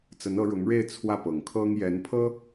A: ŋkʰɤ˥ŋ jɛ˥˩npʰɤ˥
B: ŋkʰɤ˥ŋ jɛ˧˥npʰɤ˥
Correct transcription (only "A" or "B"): B